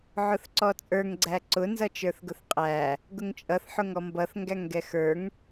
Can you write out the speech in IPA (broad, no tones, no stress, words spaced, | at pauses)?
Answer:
ʕʊθǀɔt͡sʼə˞ŋ ɡ͡ǀæǀʊ nzʌt͡ʃə˞θɡʊθqʼæ | ɡʊŋt͡ʃʼʌθ ħʊŋɔmbʌθ ŋɡæŋɡɛxə˞ŋ